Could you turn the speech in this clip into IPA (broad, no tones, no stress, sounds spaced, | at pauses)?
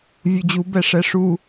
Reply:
vʲ u d͡ʑ u b ɛ ʂ ɛ ʂ u